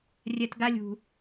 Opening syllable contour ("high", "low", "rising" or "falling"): low